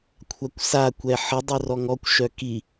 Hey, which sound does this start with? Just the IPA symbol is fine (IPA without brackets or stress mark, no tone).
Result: kʷʰ